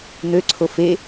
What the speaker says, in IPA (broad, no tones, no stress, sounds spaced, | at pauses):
n̪ ø ǀʰ o f e